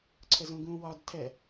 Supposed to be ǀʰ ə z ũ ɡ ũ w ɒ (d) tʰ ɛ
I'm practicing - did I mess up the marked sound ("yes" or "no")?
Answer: no